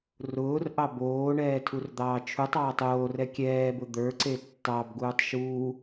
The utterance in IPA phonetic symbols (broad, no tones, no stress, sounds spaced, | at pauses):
r ʊː r ʔ ɑ b oː ɳ ɛː tʰ u r d̪ ɑː t͡ʃʰ u tˤ ɑː tˤ oː r ɛ kʲ ɛː b ʊ d̪ ə˞ ǀ e tː ɑ b ɡ uː tˤ ʃ uː